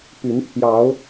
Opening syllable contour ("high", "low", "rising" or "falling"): rising